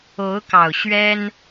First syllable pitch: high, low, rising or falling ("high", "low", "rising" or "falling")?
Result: rising